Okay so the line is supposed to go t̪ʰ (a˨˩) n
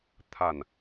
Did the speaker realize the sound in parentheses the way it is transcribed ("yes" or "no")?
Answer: yes